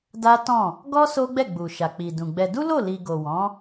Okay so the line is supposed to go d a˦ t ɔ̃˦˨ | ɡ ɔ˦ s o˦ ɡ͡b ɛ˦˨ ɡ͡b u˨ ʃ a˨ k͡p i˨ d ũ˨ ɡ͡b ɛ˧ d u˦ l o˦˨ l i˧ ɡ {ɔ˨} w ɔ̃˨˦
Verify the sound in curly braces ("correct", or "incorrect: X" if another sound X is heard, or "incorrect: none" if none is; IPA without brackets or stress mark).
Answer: incorrect: o˨